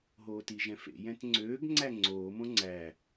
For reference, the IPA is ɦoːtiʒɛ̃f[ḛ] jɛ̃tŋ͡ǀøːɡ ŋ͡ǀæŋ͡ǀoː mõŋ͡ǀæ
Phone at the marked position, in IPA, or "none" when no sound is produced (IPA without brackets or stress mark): ḛ